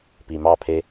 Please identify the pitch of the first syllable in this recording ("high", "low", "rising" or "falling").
low